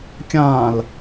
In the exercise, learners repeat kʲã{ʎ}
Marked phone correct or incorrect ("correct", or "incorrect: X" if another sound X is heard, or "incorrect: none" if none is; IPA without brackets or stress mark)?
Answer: incorrect: l